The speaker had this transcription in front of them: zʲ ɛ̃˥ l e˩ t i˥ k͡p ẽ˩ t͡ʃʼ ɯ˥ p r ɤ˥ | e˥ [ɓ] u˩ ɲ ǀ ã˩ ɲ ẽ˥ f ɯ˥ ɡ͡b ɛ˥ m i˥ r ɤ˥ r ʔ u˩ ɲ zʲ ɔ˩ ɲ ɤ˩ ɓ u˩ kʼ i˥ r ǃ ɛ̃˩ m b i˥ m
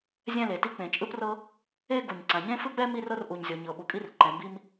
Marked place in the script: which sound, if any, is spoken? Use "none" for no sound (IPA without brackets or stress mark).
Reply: ɡ